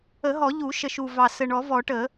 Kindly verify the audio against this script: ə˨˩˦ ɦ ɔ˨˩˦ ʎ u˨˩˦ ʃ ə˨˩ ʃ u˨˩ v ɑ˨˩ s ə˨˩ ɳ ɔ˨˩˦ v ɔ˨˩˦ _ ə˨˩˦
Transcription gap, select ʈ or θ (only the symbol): ʈ